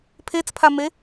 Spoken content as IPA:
pʰ e t͡s pʰ a m e

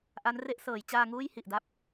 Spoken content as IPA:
ʔ a˦˥ n r e˥˩ ʔ s ɤː˩˦ j t͡ɕ aː˧ ŋ uː˥˩ j h i˨˩ ʔ d a˦˥ p̚

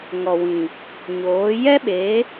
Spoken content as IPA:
ŋ ɔ˨ w ĩ˨ | ɲ oː˨˦ j ɛ˦ ɓ e˨˦

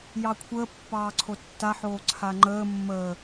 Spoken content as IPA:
j ɑ kʷʰ əː pː ɑː ǀʰ o tː a ħ oː ǀʰ a ŋ͡ǃ əː mː əː

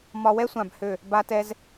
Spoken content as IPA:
m ɒ˧ w ɛ˥ sʷ ã˧˩ b h ø˧˩ | b a˧ t ɛ˧ z

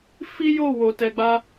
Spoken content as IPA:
f i˦ j o˦˨ w o˨ t ɛ˧ ɡ͡b a˦

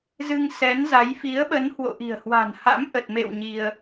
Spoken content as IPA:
z ɨ˧ ŋ s ɛ˨˦ n z a˨˦ j f i˨˦ ə̯ ɓ ə˨˦ n h w o̰˧˨ ʔ i̤˨˩ ə̯ h w a̤˨˩ n h a̰˧˥ m ʔ ə˨˩ t̚ m ḛ˧˨ w ɲ i˧ ə̯

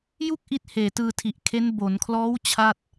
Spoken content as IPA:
j u˥˩ k̚ ʔ i˦˥ t̚ h eː˨˩ t ɯː˧ tʰ i˨˩ ʔ kʰ e˦˥ n b o˩˦ n kʰ l ɔː˦˥ w t͡ɕʰ a˥˩ t̚

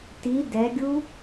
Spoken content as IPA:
t i d ɛ ɡʲ u

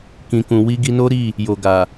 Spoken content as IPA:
k ĩ˨ k ũ˨ w i˧ ɡ i˧ n o˦ ɾ i˦˨ | j o˨ ɡ a˨

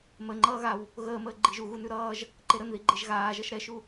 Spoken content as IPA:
m ə ŋ͡ǃ ʌː ɣ a w | ɣ əː m əː ɡ͡ǃ i ʒ u ɣ u n ʉ ɾ ʌː ʒ | ǃ e ɾ ə n ð i ɡ͡ǃ e ʒ ɣ aː ʒ ʌ ʃ ɾ ɛ ʃ u

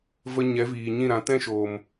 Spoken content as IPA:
v ə˧ ɲ ɛ˨˦ v iː˨ ɲ ĩ˦˨ ɾ ã˨˦ t ɛ̃˦ ʃ oː˨ m

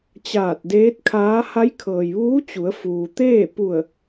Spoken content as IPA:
t͡ɕ aː˧˩ t̚ d eː˧˥ t̚ kʰ aː˧˥ h a˧˥ j kʰ ɤː˩ j ʋ uː˧˥ t͡ɕ u˩˧ ə̯ f uː˩ t̪ eː˥˨ p u˧˩ ə̯

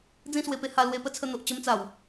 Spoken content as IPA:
d͡z ĩ˦ s w e˧ p e˧ h a˧ l w e˧ p ə˦ t͡sʰ ə˧ n̪ o˨ ʔ t͡ɕ ə˧ m t͡s a˨˩ w

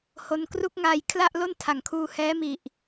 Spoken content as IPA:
h o˧ n k r u˥˩ k̚ ŋ aː˧ j kʰ l a˥˩ ʔ l o˥˩ n tʰ a˩˦ ŋ kʰ uː˧ h ɛː˦˥ m i˨˩ ʔ

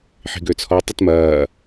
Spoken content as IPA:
ħ i̤ ɡ ø t͡sʰ ɔ tˤ ɪ t m ɐː

